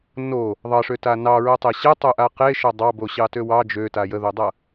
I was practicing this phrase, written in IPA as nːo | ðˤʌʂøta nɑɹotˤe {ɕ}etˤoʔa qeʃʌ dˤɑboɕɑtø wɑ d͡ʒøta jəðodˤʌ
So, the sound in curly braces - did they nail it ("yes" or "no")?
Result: yes